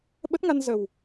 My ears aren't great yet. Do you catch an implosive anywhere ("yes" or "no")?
yes